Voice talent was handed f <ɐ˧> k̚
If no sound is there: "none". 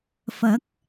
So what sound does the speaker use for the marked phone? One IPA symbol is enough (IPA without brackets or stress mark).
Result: ɐ˨˥